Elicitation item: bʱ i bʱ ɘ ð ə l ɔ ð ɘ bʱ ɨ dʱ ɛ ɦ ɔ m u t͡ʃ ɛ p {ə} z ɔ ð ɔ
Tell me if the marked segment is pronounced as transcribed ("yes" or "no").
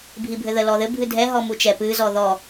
no